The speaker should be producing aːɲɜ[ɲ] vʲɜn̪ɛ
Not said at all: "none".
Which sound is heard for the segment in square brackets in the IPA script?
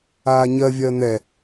none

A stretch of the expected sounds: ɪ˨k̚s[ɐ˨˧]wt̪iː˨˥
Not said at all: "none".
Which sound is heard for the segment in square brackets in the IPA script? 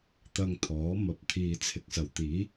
ɐ˨˩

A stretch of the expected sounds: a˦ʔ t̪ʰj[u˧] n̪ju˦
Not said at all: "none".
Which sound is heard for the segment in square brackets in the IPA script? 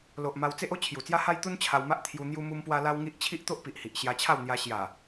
u˧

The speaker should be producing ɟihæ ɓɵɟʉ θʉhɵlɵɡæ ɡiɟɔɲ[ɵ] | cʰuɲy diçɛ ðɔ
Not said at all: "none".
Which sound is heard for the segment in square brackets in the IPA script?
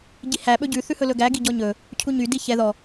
ɵ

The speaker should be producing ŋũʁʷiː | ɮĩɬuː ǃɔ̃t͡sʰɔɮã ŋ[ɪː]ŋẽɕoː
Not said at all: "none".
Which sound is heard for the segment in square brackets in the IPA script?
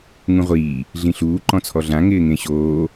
ɪː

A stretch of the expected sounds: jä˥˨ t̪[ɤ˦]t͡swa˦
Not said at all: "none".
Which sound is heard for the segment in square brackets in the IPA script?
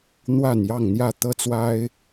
ɤ˦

